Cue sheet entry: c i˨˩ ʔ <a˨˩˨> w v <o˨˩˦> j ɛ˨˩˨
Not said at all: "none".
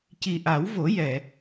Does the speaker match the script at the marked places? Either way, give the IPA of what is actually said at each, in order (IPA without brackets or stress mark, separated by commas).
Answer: a˨˩˦, o˨˩˦